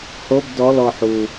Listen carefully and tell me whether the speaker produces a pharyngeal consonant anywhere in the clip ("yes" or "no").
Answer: yes